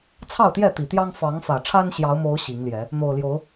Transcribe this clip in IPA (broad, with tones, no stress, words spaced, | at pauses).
t͡sʰɑ˥˨ʊ̯t̪jɛ˥˨t̪i˨˩t̪jɑ˦ŋ fɑ˨˦ŋfä˨˩ʈ͡ʂʰa˦n ɕjɑ˨˦ʊ̯mo˨˦ʊ̯ ɕi˨˦ŋljɛ˨˦ | n̪o˨˩ʊ̯ljo˨˦ʊ̯